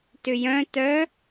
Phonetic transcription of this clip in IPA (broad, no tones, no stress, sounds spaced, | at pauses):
t ʏ j œ̃ t œ